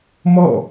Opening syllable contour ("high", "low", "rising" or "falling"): falling